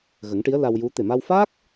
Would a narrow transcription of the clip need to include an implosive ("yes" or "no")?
no